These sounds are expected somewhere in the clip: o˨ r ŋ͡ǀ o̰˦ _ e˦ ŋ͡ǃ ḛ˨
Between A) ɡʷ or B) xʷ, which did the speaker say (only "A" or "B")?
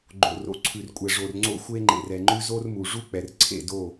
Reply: B